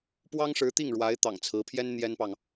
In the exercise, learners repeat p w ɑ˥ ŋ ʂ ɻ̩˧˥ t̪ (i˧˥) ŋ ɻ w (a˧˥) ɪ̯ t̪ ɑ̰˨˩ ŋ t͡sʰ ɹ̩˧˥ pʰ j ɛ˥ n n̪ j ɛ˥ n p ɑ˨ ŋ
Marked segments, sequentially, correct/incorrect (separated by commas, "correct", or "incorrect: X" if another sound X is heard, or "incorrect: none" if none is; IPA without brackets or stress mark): incorrect: i˥˩, correct